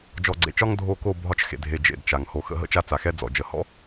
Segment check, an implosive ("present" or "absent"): absent